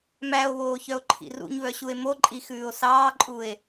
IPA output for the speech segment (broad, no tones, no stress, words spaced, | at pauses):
mæo̯βoːçœo̯ǃʰḭ rṵɲβœɕue̯ moǃʼixʉːo̯ sɑːǃʼue̯